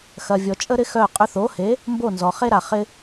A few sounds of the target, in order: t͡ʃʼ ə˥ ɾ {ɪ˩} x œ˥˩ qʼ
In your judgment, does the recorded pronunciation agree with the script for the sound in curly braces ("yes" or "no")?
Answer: no